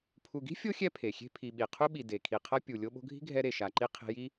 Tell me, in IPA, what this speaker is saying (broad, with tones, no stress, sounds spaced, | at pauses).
pʰ u˨ ɡ i̤˥ fʲ o˥ xʲ ɛ˦ pʰ e˩ xʲ e̤˦ pʰ i˨ ɓ i˨ qʰ u˦ ɓ i˨ d e˩ kʰ i˨ qʰ ʌ˦ pʲ u˨ lʲ o˦ ɓ o̤˦ ɡʱ i̤˥ ɡʱ ɛ˦ ɾ e˨ ʃ a˨ ǃ i˦ qʰ e̤˦ j i˥